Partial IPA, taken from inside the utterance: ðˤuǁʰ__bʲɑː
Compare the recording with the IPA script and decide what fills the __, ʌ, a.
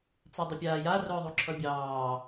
ʌ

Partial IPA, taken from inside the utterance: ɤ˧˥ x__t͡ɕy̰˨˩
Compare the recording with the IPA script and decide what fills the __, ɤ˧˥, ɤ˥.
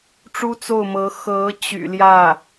ɤ˧˥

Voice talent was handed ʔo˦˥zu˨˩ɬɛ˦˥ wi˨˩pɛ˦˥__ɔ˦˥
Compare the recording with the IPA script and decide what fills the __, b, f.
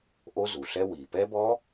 b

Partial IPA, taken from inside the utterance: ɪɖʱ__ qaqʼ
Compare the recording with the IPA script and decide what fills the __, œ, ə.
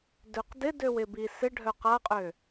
œ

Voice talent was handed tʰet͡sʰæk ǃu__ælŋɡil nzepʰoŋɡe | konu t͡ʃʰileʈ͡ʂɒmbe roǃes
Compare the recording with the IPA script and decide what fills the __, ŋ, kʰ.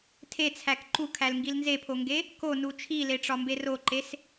kʰ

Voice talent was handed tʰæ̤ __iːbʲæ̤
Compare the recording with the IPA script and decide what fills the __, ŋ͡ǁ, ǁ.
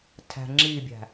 ŋ͡ǁ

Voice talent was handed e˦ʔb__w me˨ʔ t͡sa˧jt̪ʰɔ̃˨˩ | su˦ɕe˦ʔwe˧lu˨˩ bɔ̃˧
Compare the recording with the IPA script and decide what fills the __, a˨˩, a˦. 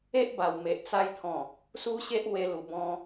a˨˩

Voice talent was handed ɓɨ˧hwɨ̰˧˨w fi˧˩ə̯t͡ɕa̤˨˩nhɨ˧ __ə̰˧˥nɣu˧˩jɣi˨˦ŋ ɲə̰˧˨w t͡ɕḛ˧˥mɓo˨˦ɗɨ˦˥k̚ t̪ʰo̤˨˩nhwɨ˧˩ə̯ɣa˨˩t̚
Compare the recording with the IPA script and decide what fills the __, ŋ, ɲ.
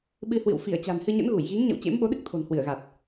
ɲ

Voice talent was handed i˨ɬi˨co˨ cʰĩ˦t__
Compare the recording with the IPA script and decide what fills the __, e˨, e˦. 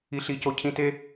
e˦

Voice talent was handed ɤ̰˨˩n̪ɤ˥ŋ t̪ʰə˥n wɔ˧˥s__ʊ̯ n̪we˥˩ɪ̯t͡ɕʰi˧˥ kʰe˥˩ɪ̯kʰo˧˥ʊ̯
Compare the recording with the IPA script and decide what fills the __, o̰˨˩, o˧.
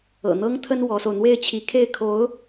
o˧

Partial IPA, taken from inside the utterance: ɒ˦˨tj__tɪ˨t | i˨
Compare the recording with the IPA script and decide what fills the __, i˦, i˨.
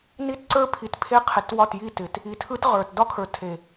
i˦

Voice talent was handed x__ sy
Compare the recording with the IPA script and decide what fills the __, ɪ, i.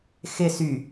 ɪ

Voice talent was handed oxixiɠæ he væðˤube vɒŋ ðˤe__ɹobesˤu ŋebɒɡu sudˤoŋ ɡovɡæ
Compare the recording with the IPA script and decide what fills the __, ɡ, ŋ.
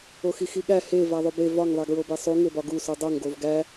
ɡ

